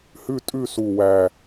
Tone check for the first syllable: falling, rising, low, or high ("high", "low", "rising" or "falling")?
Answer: falling